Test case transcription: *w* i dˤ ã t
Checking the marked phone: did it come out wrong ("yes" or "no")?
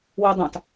no